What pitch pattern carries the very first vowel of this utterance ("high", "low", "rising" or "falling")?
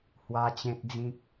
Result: high